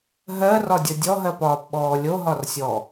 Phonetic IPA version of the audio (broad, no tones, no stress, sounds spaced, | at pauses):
ɦ ɜ r ɒ dʲ ʌ dʲ ɔ ɦ ɜ p ɒː p ɓ ɔː lʲ o ɦ ɒ r sʲ ɔ